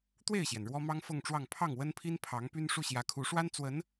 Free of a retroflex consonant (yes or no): no